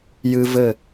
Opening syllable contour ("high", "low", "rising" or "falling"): high